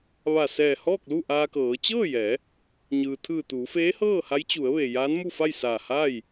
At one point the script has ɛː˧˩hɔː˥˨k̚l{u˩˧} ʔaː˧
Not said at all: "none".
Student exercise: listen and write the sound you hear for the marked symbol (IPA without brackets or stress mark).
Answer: u˥˨